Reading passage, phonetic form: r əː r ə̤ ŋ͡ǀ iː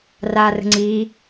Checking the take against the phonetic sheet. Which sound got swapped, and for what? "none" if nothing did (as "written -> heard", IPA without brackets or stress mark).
əː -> aː